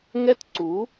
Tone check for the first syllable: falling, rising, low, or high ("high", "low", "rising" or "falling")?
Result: high